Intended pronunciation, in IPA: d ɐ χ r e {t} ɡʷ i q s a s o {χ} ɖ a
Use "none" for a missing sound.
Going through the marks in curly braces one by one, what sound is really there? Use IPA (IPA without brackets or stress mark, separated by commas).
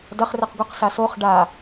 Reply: q, χ